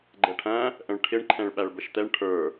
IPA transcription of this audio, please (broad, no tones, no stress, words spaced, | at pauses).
ɡ͡ǃɛʈʰæ̃ | ʔə̃ɭʈʰɪɳǃʰɛ̃ɭ ɓæɭbəʃt̪ɛɳ ʈʰə˞